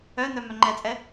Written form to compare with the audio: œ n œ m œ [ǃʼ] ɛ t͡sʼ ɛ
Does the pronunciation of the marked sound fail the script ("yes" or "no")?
yes